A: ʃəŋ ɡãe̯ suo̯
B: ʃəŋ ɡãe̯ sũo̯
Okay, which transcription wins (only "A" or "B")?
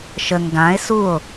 A